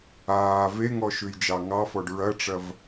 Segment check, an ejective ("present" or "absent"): absent